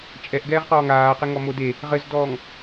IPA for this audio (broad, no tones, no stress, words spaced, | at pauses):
t͡ʃʼɛʔ ɡɛːʁqɔːŋaːqe ŋɔmode | ʁɘzdɔːŋ